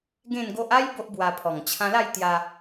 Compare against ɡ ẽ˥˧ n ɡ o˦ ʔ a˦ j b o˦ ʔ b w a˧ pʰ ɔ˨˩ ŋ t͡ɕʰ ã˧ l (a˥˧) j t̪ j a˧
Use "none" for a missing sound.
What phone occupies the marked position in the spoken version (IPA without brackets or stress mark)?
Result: a˥˧